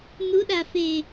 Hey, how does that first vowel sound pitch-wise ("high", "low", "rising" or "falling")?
rising